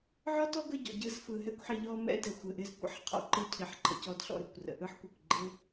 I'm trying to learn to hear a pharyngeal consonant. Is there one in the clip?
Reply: yes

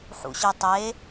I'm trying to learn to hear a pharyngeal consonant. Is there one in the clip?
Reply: yes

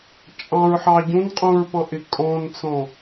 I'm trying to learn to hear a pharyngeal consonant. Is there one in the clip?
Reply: yes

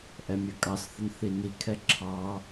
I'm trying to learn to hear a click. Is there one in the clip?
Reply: yes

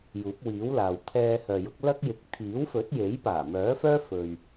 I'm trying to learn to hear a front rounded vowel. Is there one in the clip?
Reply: yes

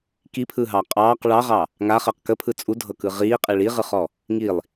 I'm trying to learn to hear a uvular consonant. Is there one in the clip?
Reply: yes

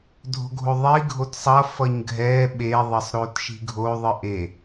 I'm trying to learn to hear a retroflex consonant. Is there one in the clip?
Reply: no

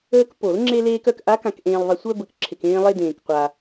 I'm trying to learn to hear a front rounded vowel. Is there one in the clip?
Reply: yes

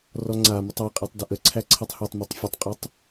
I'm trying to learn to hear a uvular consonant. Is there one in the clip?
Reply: yes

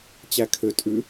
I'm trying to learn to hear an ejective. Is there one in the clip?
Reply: yes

